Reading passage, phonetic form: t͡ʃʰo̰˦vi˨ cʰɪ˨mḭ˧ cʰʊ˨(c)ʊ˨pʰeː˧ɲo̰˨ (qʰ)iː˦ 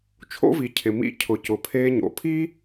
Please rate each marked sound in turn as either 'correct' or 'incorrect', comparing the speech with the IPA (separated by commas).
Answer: correct, incorrect